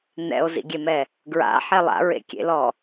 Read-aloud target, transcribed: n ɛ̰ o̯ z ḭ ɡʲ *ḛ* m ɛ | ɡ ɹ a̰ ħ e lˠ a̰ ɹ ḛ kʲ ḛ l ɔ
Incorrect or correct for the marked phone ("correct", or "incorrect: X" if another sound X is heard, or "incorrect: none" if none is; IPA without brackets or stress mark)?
incorrect: e